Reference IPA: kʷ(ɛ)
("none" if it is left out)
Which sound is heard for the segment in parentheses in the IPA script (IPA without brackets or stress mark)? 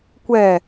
ɛ